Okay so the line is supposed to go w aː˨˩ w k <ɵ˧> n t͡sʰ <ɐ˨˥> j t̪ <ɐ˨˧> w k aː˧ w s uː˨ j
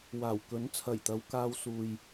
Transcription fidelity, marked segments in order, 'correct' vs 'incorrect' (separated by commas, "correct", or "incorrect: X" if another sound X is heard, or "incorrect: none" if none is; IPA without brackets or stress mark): incorrect: ɵ˨˥, incorrect: ɐ˨˩, correct